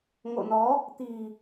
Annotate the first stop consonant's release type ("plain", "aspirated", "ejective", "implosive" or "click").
plain